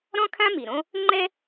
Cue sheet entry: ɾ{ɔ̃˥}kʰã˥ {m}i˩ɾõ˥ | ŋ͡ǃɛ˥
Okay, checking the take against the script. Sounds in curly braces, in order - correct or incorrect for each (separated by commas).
correct, correct